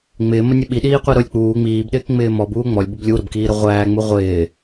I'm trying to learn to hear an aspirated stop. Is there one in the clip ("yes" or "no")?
no